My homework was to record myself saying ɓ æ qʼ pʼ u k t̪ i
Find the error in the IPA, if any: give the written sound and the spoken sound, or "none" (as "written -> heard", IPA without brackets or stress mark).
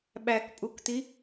qʼ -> k